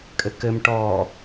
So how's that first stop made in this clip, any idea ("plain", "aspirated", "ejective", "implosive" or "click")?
ejective